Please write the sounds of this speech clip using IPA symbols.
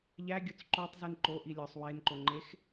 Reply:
ʎ æ ɡʲ o t͡s ǃ o tˤ z i n ǃ o ʔ i lʲ ɒ sˤ w e n ǃ o ŋ͡ǃ e x

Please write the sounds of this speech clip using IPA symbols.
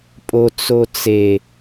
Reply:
pʼ o t͡s o t͡s e

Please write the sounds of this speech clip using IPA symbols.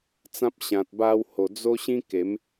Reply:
t͡s ã˦ p̚ ɕ ã˨ t̚ b a˦ w h o˨˩ d͡z o˦ ɕ ĩ˦ k e˨˦ m

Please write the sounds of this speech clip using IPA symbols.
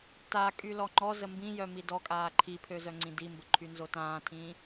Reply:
t a kʼ y l ɔ ŋ͡ǃ ɔ z ə m b ĩ j œ m i d ɔ kʼ aː ǃʰ i pʰ ø z œ ŋ͡ǀ ĩ d i m b ə ǃʰ y n z o t ãː tʰ ĩː

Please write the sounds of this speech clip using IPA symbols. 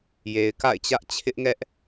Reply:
j e˨ ɪ̯ k a̰˦˨ ɪ̯ t͡ɕ ä˦ ʔ t͡ɕʰ ɪ˦ ʔ ŋ ɛ˦ ʔ

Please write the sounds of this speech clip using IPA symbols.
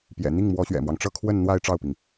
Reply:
p j ɛ̰˨˩ n̪ i˥˩ ŋ m w ɔ˧˥ ɕ ɥ ɛ̰˨˩ m w ɑ˦ ŋ ʈ͡ʂ ɤ˥˧ kʰ w ə˥˧ n n̪ w a˥˧ ɪ̯ ʈ͡ʂ ɑ˥˩ ʊ̯ p i˩ ŋ

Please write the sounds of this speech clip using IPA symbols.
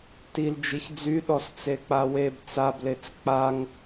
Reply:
t i l d͡ʒ i ç d͡z y ɗ ɔ s t͡s e k͡p a w e b t͡s a b l e t͡s k͡p a ŋ

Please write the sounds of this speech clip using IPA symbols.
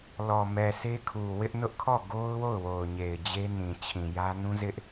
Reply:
l ɔ˨ m ɛ˨ sʰ e˦ kʰ u˨ w ɪ˦ ʔ n ʊ˦ ʔ kʰ ɔ˦˨ ɡ o˦ ʊ̯ w o˦˨ ʊ̯ w o˨ ʊ̯ ɲ e˨ ɪ̯ d͡ʑ e˦ n ĩ˨ t͡ɕʰ ĩ˨ j ä˦ n ũ˦ z ɪ˦ ʔ

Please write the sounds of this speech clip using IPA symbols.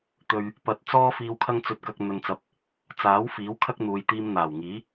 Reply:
t̪ ɵ˨ ɥ | p ɐ˨ t̚ t͡s ɔː˥ f iː˧ w kʰ ɐ˥ ŋ t͡s ɵ˧ t̚ k ɐ˧ k̚ n̪ ɵ˨ n t͡s ɐ˨˥ p̚ | t͡s aː˨˥ w f iː˨˥ w kʰ ɐ˥ k̚ n̪ uː˨˧ j t̪ iː˧ m n̪ aː˨˩ w ŋ iː˨˥

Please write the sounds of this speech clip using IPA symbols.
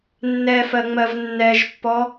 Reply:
nː ɛ f ɜ ŋ͡m ɜ v nː ɛ ʒ pː ɔ

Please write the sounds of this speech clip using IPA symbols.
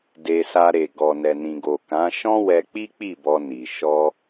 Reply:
d e˧ s a˧ ɾ e˨ ɡ ɔ˨ n ɛ˨ n ĩ˨ ɡ o˨ k ã˨˦ ʃ ɔ̃˦ w ɛ˧ k͡p i˦ k͡p i˦˨ b ɔ˧ n i˨ ʃ ɔ˧

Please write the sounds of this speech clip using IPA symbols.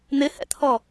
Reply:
n̪ ɪ h ɛ̰ t̪ʰ ɔ

